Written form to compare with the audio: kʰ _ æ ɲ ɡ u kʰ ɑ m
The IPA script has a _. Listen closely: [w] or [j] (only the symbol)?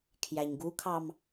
j